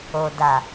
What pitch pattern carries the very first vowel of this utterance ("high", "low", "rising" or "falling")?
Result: low